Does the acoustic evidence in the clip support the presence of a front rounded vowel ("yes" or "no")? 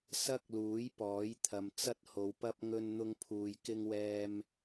no